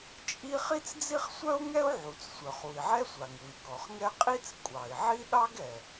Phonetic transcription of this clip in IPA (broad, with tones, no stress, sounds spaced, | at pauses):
t͡ʃʼ i˥ χ i˥ t͡s d͡z i˥ χ sʷ œ˥ u̯ ŋ ɛ˥ u̯ ʕ u˩ t͡s sʷ œ˩ χ u˩ i̯ ʕ ɛ˥ sʷ a˩ ŋ u˩ i̯ k ɔ˩ χ ŋ ɛ˥ qʼ i˥ t͡s kʷʼ ɑ˩ i̯ ʕ i˥ ɗ ɑ˥ ɡ ɛ˩